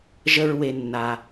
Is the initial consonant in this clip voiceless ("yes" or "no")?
no